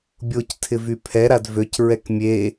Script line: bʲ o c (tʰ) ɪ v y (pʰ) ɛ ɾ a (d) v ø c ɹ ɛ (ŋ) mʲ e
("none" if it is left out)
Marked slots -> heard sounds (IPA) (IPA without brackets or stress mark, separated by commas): tʰ, pʰ, d, k